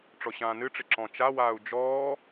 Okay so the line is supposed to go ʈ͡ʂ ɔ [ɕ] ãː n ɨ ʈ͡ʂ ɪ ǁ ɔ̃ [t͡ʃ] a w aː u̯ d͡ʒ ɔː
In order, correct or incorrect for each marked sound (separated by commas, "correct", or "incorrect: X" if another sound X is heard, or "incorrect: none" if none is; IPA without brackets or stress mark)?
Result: correct, correct